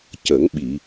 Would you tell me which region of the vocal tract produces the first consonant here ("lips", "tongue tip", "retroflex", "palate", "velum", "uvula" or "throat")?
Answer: palate